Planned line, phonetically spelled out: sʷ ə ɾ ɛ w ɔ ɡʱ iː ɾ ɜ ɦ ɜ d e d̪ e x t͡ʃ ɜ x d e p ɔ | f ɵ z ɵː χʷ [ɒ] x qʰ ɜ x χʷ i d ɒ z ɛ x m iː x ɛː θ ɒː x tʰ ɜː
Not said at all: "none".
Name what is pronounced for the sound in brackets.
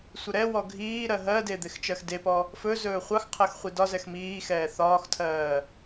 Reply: ɑ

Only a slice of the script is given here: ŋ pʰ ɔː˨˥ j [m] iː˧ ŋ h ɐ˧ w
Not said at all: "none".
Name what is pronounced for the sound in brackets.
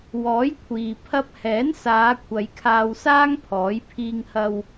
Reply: pʰ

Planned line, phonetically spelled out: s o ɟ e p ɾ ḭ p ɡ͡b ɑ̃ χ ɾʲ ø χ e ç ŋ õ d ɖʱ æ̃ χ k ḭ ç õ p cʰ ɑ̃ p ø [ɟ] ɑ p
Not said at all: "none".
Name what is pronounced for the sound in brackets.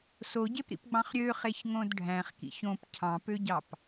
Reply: ɟ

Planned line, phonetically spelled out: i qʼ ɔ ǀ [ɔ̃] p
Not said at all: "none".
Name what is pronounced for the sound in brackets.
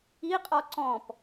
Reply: ɔ̃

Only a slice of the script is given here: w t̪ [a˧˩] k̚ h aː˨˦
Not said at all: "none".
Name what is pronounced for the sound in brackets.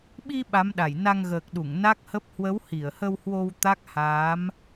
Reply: a˦˥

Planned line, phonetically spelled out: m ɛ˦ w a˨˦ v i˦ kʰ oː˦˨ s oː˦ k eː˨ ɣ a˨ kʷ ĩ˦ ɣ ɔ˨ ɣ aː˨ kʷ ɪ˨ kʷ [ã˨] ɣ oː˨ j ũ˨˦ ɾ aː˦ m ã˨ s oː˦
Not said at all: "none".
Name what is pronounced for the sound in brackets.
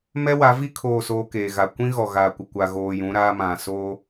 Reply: a˨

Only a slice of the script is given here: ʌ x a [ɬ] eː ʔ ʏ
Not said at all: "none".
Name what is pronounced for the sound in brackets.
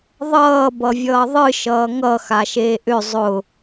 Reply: ʃ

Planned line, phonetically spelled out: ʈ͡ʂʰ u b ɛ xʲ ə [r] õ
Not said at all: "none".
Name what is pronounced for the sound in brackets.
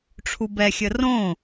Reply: r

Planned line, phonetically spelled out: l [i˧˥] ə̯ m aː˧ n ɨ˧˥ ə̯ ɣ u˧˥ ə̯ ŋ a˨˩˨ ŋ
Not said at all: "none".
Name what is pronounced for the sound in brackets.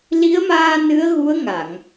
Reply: i˧˥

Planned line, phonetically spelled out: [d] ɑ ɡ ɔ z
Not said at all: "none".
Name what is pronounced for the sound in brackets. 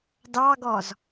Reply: d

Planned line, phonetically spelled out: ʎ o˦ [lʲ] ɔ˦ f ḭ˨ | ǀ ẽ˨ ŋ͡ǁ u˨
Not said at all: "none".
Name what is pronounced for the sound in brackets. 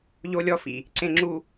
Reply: lʲ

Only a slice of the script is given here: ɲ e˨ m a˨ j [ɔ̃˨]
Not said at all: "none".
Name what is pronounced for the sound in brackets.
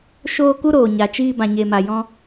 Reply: ɔ̃˧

